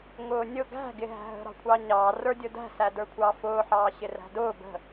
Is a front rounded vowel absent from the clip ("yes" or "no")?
yes